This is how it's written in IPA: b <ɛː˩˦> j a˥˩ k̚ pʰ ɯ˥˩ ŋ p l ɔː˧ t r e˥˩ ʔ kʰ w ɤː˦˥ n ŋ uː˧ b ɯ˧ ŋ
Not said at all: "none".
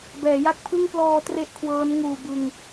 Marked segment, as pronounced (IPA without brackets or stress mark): ɛː˩˦